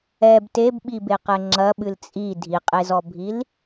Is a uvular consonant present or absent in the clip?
present